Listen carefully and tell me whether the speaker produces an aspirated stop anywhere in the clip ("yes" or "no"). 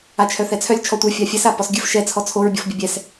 yes